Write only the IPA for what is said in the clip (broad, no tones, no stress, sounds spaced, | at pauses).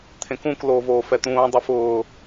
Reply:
t̪ʰ ẽ k ũ k l oː v oː f ɛ t̪ ũː dˤ ɪ f ʊː